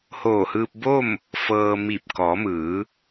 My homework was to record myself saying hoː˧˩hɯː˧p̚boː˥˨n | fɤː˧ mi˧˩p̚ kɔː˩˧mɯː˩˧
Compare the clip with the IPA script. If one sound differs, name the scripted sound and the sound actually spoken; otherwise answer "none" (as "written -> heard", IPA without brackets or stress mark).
n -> m